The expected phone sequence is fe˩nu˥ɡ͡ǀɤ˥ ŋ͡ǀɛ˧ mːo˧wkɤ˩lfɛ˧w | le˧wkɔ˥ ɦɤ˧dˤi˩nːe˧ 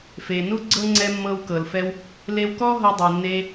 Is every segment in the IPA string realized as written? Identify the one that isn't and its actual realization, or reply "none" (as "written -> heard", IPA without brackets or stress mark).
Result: o˧ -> ɤ˧